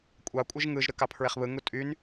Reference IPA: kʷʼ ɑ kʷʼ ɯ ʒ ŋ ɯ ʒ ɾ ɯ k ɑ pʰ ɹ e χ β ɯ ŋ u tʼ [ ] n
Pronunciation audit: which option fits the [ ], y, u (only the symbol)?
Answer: y